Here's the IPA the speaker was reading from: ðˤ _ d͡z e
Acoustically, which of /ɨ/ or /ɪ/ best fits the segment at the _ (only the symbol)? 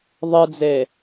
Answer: ɨ